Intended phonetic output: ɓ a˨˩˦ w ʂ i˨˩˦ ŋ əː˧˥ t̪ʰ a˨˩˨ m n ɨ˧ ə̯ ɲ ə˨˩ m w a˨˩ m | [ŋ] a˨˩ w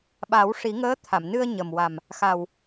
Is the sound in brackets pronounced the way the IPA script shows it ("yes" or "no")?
no